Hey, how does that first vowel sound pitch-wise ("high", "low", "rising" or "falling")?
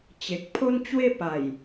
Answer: low